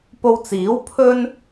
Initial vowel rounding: rounded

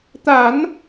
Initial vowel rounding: unrounded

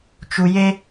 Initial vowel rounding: rounded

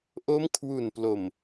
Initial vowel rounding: rounded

